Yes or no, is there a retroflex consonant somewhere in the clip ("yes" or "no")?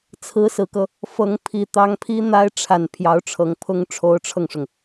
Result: yes